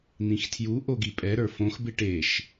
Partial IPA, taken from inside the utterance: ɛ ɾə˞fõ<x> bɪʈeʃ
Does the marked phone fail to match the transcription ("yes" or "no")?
no